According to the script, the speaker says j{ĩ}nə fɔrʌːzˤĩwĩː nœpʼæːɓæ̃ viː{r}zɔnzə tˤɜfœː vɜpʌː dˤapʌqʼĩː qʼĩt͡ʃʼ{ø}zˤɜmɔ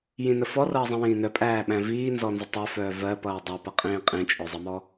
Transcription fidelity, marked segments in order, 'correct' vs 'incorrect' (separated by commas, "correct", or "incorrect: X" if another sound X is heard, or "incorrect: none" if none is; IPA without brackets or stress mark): correct, incorrect: n, incorrect: œ